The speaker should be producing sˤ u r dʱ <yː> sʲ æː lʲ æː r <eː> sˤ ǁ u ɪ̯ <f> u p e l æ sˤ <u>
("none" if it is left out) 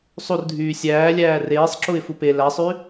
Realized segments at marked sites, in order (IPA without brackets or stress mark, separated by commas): yː, eː, f, y